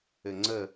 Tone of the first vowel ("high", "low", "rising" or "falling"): low